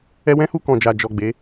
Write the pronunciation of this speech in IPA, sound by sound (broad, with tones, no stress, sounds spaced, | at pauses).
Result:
ɛ˧ w ɛ̃˦ h u˧ k ɔ̃˨ d͡ʒ a˨ d͡ʒ ɔ˨ ɡ͡b e˨˦